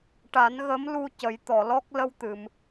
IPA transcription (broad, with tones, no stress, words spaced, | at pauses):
ʈa˨˩˦nɣə˧˥mlu˧ cə˨˩˦jt̪ɔ˨˩˨lɔ˦˥k̚ lə˧wt̪ɨ˨˩˨m